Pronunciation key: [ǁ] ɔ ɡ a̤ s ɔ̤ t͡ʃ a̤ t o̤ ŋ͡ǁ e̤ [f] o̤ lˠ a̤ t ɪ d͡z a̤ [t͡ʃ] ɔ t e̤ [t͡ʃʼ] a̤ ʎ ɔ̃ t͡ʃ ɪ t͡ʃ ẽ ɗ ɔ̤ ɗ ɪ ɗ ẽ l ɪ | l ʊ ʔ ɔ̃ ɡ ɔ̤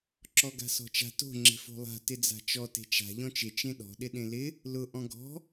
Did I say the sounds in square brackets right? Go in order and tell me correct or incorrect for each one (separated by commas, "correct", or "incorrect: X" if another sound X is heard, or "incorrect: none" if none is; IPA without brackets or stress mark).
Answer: correct, correct, correct, incorrect: t͡ʃ